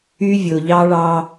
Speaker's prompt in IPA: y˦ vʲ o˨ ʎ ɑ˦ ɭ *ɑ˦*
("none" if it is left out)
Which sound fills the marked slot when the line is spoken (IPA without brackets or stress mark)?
ɑ˦